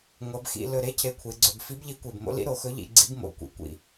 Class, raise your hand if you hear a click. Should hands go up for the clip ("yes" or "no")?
yes